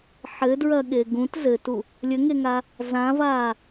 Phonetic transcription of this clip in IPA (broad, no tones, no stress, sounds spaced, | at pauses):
ħ ɘ d ɹ ɐ ɠ e ɡ ũ t z ɘ t u | lʲ ɘ ŋ e ŋ a | z ã v a